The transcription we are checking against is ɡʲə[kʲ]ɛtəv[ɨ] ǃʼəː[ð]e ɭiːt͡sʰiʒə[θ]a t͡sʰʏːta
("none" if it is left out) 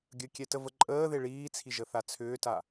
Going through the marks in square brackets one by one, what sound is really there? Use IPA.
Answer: kʲ, ə, ð, θ

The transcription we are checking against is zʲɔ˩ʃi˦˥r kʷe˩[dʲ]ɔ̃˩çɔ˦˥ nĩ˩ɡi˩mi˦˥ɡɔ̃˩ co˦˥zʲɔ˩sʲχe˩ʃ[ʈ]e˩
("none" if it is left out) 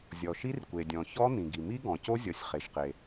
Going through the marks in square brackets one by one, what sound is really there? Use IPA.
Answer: dʲ, q

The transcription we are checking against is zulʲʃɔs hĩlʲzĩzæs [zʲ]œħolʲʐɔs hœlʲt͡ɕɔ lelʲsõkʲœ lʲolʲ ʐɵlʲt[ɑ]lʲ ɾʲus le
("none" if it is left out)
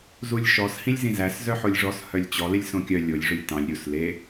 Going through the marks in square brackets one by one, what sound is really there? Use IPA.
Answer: z, ɑ̃

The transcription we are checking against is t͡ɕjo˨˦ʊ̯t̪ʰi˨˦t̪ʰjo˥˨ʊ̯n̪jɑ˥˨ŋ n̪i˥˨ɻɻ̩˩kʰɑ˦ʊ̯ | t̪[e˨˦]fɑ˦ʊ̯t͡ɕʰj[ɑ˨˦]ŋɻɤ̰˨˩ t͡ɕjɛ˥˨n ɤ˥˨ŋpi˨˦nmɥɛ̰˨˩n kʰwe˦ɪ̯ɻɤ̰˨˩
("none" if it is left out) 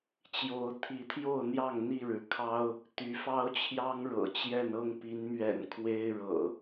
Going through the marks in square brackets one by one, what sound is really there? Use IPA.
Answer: y˨˦, ɑ˦

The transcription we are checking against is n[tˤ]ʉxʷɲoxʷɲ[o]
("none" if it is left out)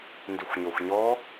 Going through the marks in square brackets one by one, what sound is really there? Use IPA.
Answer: d, ɔ

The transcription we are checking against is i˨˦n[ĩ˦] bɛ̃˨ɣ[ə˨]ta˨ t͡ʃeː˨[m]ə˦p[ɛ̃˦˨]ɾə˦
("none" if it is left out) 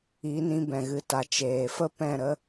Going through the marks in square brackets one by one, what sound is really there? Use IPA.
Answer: ĩ˧, ɨ˨, f, ɛ̃˦˨

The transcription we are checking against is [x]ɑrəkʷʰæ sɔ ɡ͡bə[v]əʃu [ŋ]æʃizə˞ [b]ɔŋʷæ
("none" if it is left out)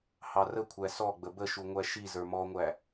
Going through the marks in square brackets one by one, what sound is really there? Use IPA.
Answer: h, b, ŋʷ, m

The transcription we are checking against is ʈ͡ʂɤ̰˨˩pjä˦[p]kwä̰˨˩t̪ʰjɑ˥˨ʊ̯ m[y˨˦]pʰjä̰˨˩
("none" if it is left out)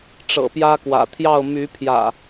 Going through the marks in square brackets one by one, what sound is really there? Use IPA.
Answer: none, y˨˦

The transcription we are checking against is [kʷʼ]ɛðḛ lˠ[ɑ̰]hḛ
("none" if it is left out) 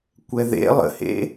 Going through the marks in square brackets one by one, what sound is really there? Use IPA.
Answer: kʷ, ə̰

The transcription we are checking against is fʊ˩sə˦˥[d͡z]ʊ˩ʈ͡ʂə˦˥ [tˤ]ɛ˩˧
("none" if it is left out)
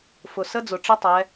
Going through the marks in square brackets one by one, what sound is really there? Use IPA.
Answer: d͡z, tˤ

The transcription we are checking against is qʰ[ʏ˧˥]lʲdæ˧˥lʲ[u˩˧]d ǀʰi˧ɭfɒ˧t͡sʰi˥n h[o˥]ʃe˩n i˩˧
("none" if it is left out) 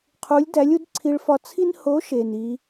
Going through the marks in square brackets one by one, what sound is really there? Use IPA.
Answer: u˧˥, u˧˥, o˧˥

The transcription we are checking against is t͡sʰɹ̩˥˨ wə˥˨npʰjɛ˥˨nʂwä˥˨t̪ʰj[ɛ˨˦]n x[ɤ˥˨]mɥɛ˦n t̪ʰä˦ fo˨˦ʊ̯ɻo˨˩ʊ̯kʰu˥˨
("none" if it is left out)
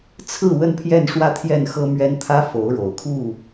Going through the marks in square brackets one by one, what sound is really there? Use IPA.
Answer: ɛ˥˨, ɤ˦

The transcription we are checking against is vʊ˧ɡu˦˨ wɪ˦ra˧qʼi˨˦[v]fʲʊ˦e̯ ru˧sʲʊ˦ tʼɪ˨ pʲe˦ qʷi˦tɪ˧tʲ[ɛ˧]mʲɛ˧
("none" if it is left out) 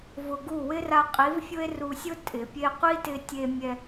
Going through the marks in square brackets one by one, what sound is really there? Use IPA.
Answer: v, e˧

